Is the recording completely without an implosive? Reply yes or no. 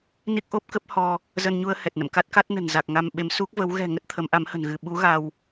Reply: no